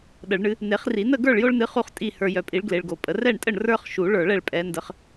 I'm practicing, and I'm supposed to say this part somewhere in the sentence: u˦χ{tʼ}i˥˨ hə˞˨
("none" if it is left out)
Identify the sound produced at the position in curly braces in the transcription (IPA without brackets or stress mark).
tʼ